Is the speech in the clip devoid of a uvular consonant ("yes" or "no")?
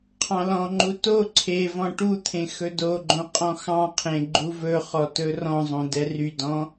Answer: no